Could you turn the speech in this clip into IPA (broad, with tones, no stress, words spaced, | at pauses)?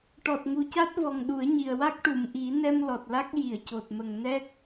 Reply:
ʈɔ˨˩t̚ŋu˨˩ca˦˥t̚vɔ˨˩ŋ ɗu˨˩˦ə̯ɲi˨˩ə̯wa˦˥k̚ ʈu˨˩˨mʔi˨˩˦nɛ˧m lɔ˨˩t̚la˦˥k̚ ji˨˩˨ə̯co˨˩t̚mə˨˩ŋ nɛ˦˥k̚